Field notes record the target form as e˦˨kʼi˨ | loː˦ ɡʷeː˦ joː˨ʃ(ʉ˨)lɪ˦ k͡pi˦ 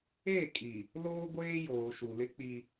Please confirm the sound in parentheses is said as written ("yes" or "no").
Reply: no